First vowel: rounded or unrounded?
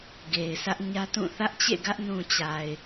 unrounded